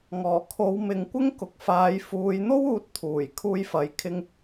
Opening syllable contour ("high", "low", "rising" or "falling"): low